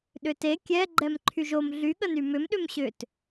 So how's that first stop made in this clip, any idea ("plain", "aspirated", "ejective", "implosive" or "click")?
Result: implosive